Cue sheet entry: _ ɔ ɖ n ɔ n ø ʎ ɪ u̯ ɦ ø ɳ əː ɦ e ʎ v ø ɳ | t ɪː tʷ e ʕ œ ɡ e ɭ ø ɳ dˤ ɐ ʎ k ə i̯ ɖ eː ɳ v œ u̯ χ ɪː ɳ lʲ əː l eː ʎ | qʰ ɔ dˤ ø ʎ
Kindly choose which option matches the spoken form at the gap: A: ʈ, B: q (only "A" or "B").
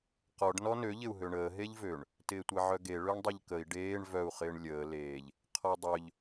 B